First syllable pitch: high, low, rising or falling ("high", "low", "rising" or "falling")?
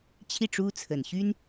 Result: falling